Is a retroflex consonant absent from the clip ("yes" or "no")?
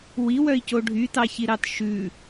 no